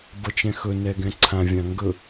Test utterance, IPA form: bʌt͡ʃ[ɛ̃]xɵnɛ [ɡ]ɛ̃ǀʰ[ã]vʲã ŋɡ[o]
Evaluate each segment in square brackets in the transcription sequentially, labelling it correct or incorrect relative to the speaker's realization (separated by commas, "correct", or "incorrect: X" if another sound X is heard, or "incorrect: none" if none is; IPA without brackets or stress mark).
correct, correct, correct, incorrect: ɵ